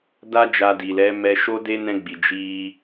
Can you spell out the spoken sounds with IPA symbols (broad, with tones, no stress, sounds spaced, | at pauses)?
d a˦ d͡ʒ a˧ d i˨ l ɛ˨˦ m ɛ˧ ʃ o˦ d e˦ n ɛ̃˧ ɡ͡b i˨ d͡ʒ i˧